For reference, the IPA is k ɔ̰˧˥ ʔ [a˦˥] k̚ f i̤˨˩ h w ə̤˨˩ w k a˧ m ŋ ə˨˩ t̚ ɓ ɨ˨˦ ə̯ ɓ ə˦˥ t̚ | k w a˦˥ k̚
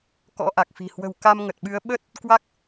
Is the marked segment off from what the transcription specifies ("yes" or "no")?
yes